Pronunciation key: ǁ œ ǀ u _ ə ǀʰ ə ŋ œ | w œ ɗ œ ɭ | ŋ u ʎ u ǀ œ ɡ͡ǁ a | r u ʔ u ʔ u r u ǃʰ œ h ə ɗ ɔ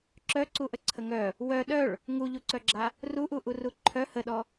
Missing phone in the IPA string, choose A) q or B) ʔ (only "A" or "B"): B